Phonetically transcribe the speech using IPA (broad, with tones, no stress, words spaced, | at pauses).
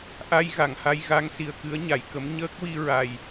ʔa˧j ɣa˨˩˨ŋha˧j ɣa˧˥ŋsi˨˩ə̯kɨ˧˥ə̯ ɲa˨˩˨jkə˧˥m ɲəː˦˥k̚wi˧ ɹa˨˩j